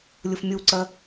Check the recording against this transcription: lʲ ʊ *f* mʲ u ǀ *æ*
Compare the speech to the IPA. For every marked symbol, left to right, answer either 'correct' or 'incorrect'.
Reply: correct, incorrect: ɜ

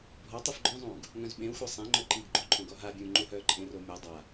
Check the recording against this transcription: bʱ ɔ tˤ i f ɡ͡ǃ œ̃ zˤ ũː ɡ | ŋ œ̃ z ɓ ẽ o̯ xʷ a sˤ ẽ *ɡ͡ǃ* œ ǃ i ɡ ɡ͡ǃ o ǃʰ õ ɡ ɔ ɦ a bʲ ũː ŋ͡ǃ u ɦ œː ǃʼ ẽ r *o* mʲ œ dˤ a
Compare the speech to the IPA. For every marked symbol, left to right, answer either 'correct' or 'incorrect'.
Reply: incorrect: ŋ͡ǃ, correct

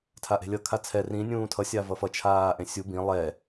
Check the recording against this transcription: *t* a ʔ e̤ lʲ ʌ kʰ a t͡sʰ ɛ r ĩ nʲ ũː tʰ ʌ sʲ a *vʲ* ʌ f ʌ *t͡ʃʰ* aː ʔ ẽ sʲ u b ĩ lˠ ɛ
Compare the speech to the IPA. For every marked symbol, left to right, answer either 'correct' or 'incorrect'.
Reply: incorrect: tʰ, incorrect: v, correct

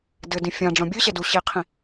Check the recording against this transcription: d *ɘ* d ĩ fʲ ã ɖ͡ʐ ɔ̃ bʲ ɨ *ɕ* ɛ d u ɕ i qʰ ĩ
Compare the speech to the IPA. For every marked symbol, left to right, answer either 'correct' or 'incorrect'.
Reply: correct, correct

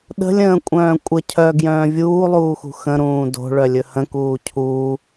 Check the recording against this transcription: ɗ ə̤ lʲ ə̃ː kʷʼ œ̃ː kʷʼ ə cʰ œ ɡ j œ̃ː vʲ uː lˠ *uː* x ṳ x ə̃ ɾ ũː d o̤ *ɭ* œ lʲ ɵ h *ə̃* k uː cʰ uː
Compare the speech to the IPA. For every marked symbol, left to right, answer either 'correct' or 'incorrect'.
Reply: correct, correct, correct

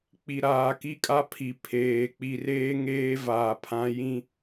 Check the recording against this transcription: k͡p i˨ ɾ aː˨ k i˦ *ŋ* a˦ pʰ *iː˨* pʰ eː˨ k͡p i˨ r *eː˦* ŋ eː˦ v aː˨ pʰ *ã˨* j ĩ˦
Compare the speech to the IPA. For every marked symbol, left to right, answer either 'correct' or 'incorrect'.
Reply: incorrect: kʼ, incorrect: i˨, correct, incorrect: ã˨˦

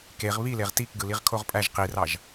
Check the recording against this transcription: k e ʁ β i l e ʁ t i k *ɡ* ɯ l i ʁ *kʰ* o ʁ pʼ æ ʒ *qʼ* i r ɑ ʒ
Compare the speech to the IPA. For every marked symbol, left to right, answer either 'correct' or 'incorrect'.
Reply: correct, correct, incorrect: q

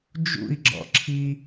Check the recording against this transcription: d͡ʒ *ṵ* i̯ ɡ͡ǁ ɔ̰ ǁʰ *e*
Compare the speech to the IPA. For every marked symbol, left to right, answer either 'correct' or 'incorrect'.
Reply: correct, incorrect: i

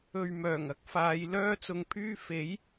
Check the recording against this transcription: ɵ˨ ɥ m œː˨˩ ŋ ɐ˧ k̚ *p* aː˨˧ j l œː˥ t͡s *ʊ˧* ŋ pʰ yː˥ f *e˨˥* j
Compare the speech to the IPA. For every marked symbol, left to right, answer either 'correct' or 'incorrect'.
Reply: incorrect: f, correct, correct

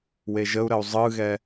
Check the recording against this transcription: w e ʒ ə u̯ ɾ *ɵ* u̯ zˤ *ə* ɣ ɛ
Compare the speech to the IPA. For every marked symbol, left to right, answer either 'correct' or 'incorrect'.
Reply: incorrect: ə, incorrect: ɯ

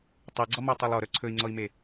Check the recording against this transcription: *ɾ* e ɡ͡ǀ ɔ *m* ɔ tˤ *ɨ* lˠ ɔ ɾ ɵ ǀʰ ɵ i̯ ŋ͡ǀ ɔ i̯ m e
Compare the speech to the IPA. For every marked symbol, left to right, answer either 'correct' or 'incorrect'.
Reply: incorrect: tˤ, correct, incorrect: ɛ

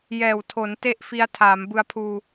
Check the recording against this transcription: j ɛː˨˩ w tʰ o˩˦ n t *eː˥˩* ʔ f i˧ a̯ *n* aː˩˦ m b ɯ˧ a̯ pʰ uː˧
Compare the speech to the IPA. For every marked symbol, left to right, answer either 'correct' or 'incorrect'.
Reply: incorrect: e˥˩, incorrect: tʰ

